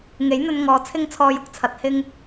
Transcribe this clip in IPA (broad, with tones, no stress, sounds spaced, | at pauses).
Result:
ŋ e˨˥ j n̪ ɵ˧ n ŋ ɔː˨ t͡sʰ ɪ˥ ŋ t͡sʰ ɔː˧ j ʊ˧ k̚ t͡sʰ ɐ˨˥ t̚ h ɪ˥ ŋ